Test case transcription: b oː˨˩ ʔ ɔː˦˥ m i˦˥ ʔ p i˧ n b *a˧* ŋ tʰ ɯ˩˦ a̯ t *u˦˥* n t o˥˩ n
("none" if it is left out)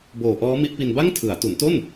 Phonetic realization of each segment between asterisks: a˥˩, u˩˦

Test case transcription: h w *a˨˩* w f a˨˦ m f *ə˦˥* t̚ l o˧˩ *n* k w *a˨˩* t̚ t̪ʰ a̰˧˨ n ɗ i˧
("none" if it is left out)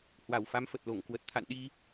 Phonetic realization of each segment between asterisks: a˨˩, ə˨˩, ŋ, ə˨˩

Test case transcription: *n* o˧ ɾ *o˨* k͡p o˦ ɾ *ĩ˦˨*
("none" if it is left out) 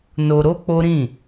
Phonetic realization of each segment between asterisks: n, o˦, ĩ˦˨

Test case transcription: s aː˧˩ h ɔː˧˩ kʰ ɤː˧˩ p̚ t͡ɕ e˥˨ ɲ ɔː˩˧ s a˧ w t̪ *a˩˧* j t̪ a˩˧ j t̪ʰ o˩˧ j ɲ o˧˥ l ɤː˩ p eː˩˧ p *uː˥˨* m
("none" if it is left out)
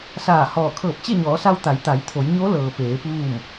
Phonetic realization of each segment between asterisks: a˩˧, uː˥˨

